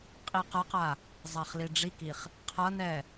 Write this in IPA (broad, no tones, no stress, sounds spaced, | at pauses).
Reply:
qʼ i q ʌ q a | zˤ a χ l i ɖ͡ʐ i k i χ | qʰ ʌ n ɛ